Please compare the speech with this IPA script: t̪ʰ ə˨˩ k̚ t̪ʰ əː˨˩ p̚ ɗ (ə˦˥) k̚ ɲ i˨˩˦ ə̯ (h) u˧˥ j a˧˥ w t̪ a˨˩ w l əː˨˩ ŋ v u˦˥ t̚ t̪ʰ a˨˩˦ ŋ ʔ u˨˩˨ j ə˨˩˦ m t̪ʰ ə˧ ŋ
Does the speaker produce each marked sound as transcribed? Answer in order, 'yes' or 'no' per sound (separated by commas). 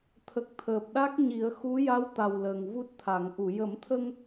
no, no